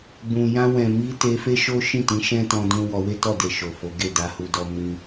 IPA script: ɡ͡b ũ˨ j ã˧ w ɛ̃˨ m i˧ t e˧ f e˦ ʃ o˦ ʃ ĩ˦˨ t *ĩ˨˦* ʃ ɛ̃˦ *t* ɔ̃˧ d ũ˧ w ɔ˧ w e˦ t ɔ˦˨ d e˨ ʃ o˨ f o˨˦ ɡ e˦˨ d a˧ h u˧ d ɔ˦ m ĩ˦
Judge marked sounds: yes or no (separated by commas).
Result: yes, yes